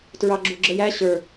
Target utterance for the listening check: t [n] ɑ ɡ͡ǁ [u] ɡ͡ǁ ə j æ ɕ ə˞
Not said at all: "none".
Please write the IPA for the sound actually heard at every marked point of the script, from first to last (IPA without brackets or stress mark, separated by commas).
ɹ, u